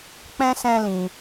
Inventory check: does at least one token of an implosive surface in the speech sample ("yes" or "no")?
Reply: no